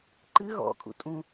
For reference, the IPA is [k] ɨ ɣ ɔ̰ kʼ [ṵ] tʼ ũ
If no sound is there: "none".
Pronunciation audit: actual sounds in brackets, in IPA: ǃ, ṵ

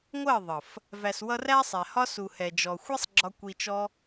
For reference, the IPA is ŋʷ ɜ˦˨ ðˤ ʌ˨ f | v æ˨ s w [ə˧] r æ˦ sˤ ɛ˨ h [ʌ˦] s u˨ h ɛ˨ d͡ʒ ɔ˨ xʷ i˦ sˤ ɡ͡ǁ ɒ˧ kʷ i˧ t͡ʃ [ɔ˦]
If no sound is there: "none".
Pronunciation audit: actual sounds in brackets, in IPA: ʌ˧, ɒ˦, ɔ˦

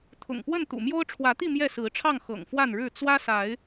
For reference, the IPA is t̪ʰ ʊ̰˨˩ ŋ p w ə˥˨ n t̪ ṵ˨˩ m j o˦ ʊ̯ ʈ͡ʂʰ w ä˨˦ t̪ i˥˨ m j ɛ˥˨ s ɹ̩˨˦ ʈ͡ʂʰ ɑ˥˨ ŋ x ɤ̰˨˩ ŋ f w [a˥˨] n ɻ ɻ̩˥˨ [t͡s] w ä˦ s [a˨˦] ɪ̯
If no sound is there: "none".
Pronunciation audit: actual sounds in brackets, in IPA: a˥˨, t͡s, a˨˦

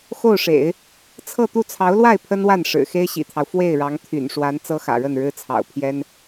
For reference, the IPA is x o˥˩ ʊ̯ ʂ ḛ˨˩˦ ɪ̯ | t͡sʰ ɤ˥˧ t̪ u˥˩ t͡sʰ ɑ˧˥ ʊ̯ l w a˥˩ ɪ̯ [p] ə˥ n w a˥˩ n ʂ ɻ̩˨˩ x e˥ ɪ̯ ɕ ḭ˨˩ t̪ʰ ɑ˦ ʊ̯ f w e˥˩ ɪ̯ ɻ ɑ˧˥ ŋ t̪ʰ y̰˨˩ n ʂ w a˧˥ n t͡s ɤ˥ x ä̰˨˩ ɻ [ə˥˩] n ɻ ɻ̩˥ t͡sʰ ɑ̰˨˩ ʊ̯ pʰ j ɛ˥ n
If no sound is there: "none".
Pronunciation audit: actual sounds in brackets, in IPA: pʰ, ə˥˩

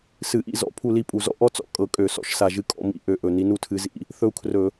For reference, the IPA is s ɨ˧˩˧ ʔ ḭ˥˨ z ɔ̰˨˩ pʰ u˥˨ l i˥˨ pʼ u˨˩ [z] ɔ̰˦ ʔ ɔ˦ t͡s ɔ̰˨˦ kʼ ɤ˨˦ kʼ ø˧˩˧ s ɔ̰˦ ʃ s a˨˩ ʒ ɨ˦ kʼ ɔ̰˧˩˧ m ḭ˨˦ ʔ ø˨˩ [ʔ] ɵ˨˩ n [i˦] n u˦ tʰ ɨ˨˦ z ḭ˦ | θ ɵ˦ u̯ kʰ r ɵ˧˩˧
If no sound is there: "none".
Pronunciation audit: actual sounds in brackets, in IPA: z, ʔ, i˨˦

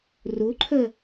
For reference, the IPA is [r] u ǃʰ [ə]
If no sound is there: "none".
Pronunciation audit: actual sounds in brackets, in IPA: r, ə

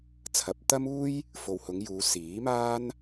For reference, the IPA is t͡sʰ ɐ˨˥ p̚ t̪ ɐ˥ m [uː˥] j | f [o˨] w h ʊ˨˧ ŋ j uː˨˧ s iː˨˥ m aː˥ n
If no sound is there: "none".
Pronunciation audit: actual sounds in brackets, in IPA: uː˥, o˨

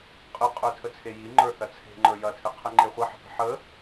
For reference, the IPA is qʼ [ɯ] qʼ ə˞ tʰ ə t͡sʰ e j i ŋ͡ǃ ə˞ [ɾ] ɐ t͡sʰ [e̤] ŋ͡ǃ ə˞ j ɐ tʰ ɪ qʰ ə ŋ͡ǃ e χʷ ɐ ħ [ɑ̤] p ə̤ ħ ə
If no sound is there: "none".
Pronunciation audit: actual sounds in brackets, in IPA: ɯ, θ, e̤, ə̤

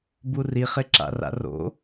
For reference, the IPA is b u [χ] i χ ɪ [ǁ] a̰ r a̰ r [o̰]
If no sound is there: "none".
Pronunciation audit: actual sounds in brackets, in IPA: r, ǁ, o̰

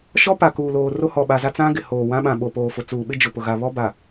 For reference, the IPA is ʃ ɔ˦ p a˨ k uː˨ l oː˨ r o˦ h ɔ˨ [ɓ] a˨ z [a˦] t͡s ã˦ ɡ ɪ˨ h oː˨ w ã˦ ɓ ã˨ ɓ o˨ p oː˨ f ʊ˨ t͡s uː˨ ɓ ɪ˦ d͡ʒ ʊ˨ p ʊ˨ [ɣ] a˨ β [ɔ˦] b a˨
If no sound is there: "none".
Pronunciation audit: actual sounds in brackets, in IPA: ɓ, a˦, ɣ, ɔ˦

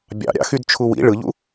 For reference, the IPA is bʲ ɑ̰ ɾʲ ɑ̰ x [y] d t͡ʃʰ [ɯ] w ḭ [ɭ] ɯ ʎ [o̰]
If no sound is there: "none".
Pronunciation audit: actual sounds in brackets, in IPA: y, u, ɭ, ṵ

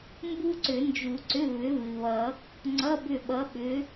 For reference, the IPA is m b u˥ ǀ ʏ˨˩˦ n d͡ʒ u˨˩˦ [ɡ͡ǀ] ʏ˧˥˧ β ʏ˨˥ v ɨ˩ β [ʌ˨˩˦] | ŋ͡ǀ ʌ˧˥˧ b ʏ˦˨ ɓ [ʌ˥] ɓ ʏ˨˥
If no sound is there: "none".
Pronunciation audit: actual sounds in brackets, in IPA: ǀ, ʌ˨˩˦, ʌ˨˥

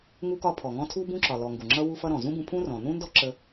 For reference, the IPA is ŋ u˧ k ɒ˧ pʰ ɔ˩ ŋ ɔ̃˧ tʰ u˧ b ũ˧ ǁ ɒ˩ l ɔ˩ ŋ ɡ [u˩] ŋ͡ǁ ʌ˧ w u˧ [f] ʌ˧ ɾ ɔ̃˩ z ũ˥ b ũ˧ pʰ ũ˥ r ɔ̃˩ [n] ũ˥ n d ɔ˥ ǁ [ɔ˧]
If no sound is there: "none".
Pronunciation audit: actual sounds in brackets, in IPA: u˩, f, n, ə˧

